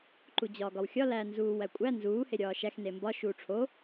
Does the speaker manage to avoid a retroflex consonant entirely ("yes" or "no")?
no